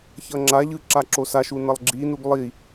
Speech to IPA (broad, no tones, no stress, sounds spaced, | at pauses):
ç ʌ ŋ͡ǁ a ʎ ɯ ǁ a ǁ o s a ʃ u n ʌ lˠ ɡ͡ǁ i n u ɡ lˠ i